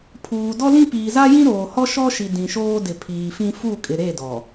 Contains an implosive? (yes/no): no